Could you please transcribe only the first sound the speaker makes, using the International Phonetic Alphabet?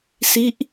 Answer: s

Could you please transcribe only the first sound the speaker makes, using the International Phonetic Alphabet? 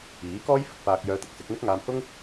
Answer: iː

